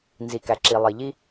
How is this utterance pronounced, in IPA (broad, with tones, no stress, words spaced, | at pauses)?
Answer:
nzi˩kæ˩ ǁi˩lˠi˩ʎi˧